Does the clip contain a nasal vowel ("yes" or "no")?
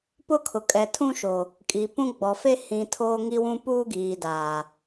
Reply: yes